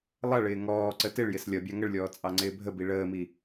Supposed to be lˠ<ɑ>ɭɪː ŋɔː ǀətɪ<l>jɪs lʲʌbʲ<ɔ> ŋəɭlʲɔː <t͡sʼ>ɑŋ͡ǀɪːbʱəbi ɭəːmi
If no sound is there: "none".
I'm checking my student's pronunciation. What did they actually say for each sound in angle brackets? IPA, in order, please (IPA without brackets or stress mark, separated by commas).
ʌ, ɭ, ɑ, t͡sʼ